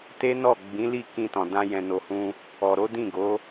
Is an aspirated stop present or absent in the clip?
absent